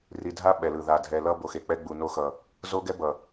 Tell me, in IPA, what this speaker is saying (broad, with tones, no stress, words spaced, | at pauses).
ri˨dʱa˦ ɓɛ˨lɯ˨ða˨ dʱɛ˨lʌ˦ bo˨xe˨k͡pɛ˦ ɡ͡bu˨no˦xʌ˨ | zo˦ɡɛ˦ bʌ˨